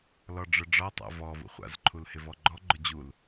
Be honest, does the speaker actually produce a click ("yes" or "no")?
yes